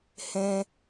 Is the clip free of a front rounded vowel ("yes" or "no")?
yes